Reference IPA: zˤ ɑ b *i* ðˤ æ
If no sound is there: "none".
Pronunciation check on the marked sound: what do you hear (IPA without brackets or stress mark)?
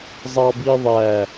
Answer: i